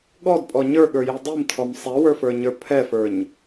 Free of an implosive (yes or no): no